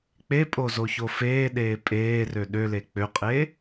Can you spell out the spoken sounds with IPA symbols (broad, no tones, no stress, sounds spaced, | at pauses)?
k͡p e pʼ o z o ç o f eː ɗ eː pʼ eː r ø ɗ ø l e k͡p ø qʼ e